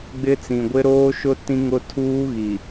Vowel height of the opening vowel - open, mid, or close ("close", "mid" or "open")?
close